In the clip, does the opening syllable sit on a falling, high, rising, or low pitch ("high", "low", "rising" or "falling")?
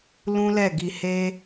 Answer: high